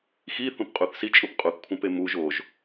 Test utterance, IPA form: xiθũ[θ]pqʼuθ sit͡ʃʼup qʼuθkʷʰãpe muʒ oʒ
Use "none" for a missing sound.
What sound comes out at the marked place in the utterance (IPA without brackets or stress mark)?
none